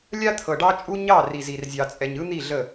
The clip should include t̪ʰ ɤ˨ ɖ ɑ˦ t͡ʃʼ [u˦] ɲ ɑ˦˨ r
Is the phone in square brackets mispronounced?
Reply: no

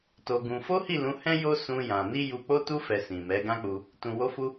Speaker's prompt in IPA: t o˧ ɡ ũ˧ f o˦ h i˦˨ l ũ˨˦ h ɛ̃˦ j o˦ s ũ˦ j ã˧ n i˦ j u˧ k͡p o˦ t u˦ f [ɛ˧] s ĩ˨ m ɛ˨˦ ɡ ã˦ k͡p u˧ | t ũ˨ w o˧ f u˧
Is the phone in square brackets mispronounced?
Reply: no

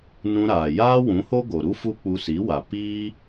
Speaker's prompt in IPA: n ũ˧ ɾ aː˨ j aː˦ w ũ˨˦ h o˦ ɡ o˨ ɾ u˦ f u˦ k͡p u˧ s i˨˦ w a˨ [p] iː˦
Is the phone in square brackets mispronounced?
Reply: no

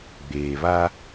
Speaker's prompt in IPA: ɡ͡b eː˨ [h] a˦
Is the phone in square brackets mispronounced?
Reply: yes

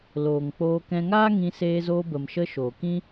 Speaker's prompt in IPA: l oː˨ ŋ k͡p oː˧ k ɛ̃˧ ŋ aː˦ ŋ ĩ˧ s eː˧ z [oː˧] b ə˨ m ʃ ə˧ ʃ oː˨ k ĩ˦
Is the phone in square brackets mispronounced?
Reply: no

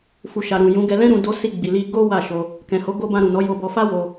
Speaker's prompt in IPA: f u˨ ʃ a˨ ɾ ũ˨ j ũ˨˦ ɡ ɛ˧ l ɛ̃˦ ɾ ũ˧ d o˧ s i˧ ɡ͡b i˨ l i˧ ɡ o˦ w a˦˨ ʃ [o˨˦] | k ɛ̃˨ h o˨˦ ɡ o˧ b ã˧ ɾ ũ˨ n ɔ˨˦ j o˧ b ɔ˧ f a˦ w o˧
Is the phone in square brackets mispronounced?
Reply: yes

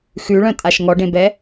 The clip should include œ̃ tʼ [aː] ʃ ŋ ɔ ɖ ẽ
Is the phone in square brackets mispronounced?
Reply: yes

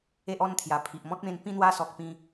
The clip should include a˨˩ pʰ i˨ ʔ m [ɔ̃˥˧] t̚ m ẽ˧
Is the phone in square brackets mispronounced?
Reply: yes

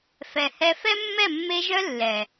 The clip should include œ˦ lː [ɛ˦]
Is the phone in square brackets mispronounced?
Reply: yes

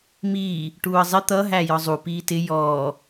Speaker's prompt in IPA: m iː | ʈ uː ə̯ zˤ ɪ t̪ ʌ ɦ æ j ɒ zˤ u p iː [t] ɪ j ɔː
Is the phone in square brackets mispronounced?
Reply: no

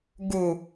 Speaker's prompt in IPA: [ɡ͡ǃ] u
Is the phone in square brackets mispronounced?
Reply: yes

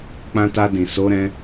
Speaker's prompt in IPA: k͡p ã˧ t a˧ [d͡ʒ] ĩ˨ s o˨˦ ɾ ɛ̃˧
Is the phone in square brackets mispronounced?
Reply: yes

